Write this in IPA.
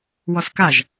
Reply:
w ɔ s k a ʒ

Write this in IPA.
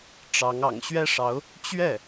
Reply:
ʈ͡ʂ ɑ˧˥ ŋ ɑ̰˨˩ ŋ ɕ ɥ ɛ˥ ʂ ɑ˧˥ ʊ̯ | t͡ɕ ɥ ɛ˥˩

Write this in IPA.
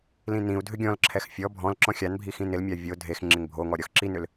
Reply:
l ĩ n ĩ u̯ dʱ ʏ ɡʲ ɔ̃ l ǁʰ ɛ x fʲ ɔ bʱ ɔ̃ l ǁ ɔ̃ xʲ a n bʱ i x ĩ n ɪ l mʲ a vʲ o dʱ e x ŋ͡ǁ ɪ ŋ bʱ o ŋ ɔ ɾʲ ɔ x ǁ i n ʏ l

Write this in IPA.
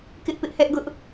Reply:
k ɪ˦ ʔ p ɪ˦ ʔ h ɛ˦ ʔ ɡ ʊ˦ ʔ

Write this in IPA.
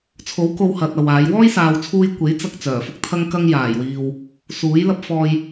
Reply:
t͡sʰ o˨˥ w k o˧ w h ɐ˨ t̚ ɐ˨ w aː˨˧ j w ɔː˥ j s aː˨ w t͡sʰ uː˧ j kʷ e˨˥ j t͡s ɐ˧ k̚ t͡s œː˨˩ f ʊ˥ k̚ t̪ʰ ɐ˥ ŋ k ɐ˥ ŋ j aː˨˩ j w iː˨ w | s uː˨˥ j l ɐ˥ p̚ f ɔː˨ j

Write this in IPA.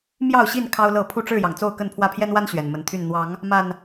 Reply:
m j ɑ˥˨ ʊ̯ ɕ i˥˨ n kʰ ɑ˦ ʊ̯ l ɤ˥˨ pʰ u˥˨ ʈ͡ʂ ɻ̩˥˨ j ɑ˩ ŋ t͡s o˥˨ ʊ̯ k ə˥˨ n pʰ w ä˥˨ pʰ j ɛ˦ n w a˦ n ɕ ɥ ɛ˨˩ n m ə˨˦ n t̪ʰ y˥˨ n n̪ w ɑ˨˦ ŋ | m a˨˩ n

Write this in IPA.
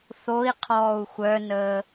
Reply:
θ o i̯ qʰ ɔː u̯ xʷ œ n əː

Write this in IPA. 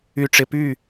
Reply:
y˧ ʈ͡ʂ ɪ˧ p y˦˨

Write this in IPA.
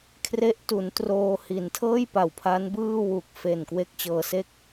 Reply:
kʰ r e˦˥ ʔ t u˩˦ n t r oː˧ h i˩˦ n tʰ ɤː˥˩ j p a˨˩ w pʰ a˦˥ n b ɯː˥˩ w u˨˩ k̚ f e˨˩ n k w e˥˩ k̚ t͡ɕ ɤː˧ s e˥˩ k̚

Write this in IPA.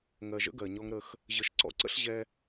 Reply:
ŋ ɜ˨ ʒ ə̰˦ ɡ ɜ˨ ɲ ɔ˦ ŋ ɾ ə˦ x | ʑ ə˨ ʃ ǀ ɔ̰˦ ǀ ə̰˦ ɬ ʑ ɛ˦

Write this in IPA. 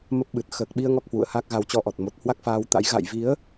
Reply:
m ə˦˥ p̚ ɓ ɨ˨˩ t̚ x əː˨˩ k̚ ɓ i˧ ə̯ ŋ ɔ˦˥ k̚ h w ṵ˧˨ ə̯ h a˦˥ k̚ ɣ a˨˦ w t͡ɕ ɔ˧ ʔ ɔ˨˩ t̚ m o˨˩ t̚ h w a˦˥ k̚ f aː˧ w t̪ a̰˧˥ j ɣ a̰˧˨ j v i˨˦ ə̯

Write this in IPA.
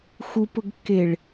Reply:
x u p ʊ ɡ kː e ɭ

